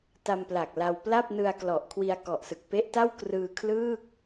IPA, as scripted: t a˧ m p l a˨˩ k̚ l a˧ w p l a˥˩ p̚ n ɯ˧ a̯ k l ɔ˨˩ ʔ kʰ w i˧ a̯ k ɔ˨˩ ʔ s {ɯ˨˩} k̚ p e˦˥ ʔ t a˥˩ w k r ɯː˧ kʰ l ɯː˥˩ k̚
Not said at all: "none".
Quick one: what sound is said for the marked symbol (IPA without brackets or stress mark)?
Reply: ɯ˨˩